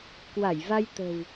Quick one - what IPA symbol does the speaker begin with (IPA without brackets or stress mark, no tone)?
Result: k